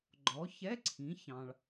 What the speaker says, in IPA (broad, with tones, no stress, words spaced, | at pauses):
ɡ͡ǃɔ˩˥ çɛ˧˥˧ǀʰĩ˩˥ çɑ̃˨ɭ